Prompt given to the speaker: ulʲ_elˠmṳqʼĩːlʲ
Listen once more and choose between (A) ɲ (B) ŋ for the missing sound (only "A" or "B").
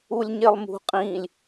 A